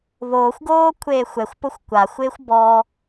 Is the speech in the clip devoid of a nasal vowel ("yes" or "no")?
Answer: yes